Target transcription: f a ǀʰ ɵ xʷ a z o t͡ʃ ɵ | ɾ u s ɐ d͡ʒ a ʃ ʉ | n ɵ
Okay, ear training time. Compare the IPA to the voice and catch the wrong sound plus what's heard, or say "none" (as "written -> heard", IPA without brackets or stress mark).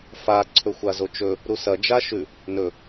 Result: none